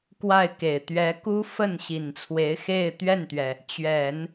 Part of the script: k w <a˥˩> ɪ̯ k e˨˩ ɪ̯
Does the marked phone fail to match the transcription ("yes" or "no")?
no